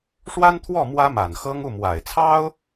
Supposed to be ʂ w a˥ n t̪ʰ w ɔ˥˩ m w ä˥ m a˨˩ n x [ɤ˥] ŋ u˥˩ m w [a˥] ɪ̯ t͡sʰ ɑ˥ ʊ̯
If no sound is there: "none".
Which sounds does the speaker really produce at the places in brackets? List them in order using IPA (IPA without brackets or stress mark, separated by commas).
ɤ˥, a˨˩